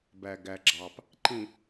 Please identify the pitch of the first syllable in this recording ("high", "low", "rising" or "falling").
low